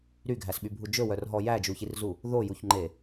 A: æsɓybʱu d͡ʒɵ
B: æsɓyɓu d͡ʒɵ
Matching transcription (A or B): A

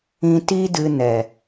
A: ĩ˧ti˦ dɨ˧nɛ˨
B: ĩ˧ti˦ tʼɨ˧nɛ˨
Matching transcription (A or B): A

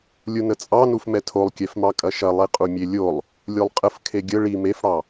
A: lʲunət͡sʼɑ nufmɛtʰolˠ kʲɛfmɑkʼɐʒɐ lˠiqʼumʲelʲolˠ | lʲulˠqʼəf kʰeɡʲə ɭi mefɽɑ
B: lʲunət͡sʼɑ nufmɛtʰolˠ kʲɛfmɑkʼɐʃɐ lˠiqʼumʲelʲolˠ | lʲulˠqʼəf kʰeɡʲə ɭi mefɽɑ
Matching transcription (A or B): B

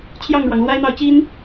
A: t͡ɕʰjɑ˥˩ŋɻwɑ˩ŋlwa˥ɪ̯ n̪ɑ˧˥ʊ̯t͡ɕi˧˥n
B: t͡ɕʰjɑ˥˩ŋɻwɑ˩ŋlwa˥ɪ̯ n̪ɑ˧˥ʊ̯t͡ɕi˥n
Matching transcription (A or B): B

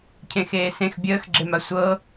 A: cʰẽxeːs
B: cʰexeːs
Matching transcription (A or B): A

